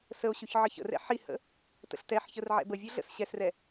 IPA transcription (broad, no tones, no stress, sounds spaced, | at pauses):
s ə o̯ ɕ ʉ ç ʕ ə ç ə̰ r ɛ̰ ħ i h ə̰ | t ə̰ ɬ t ɛ ħ ç ə r ʕ ɛ̰ b ə vʲ ɵ ɮ ə̰ s ɕ ɛ s r ɛ